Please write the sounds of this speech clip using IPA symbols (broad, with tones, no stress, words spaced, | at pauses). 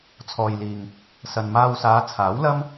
t͡sʰɔː˨jliː˨ŋ | sɐ˨nmaː˧wsaː˨˧ t͡sʰaː˨˥wlɐ˥m